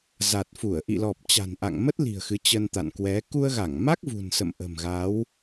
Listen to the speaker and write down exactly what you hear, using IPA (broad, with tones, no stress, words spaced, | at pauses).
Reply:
za˨˩t̚fu˧˩ə̯ ʔḭ˧˨lɔ˨˩p̚ t͡ɕa̤˨˩nʔa̰˧˨ŋmə˦˥t̚li̤˨˩ə̯ xɨ˨˦t͡ɕə˧nt̪a̰˧˨nkwɛ˨˦ ku˧ə̯ɣa˧˩ŋma˦˥k̚ vṳ˨˩nsə̰˧˨m ʔə̤˨˩mɣa˨˦w